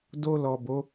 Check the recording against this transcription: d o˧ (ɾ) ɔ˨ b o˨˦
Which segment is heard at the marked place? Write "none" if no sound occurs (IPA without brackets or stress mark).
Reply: l